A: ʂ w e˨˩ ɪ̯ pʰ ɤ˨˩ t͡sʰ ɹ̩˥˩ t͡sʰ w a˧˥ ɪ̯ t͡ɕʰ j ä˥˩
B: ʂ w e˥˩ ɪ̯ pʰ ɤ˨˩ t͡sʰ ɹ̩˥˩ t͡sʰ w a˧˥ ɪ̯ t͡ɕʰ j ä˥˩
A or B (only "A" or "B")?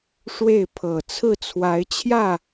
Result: B